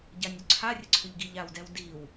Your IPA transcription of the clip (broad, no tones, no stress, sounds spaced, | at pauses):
ɟ a nʲ ʏ ǀʰ a rʲ ə ǀʰ ʏ ʎ ɡ i ʎ a w d ɛ w d i w